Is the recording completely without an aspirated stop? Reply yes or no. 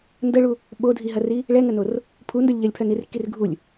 no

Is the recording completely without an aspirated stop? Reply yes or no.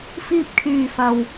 no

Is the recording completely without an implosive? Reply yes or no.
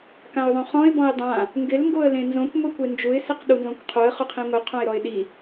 no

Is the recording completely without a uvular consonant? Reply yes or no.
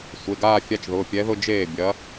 yes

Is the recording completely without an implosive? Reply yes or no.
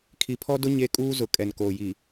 yes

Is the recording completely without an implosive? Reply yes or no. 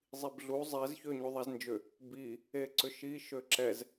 yes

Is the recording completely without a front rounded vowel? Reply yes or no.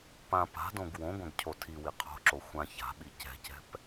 yes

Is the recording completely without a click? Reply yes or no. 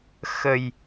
yes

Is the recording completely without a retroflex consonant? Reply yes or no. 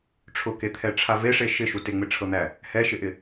no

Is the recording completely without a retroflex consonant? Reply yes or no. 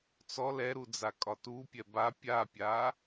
yes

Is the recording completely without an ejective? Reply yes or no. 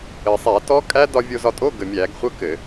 no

